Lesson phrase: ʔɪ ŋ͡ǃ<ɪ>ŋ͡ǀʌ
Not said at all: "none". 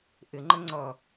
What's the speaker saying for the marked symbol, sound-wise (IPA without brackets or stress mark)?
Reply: ə